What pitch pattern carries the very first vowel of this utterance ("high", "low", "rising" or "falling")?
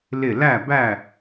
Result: falling